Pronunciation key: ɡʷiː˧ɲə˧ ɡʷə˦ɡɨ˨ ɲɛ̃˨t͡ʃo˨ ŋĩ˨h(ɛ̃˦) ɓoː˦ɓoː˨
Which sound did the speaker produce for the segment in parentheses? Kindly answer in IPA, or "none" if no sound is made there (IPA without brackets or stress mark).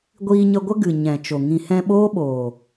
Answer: ɛ̃˧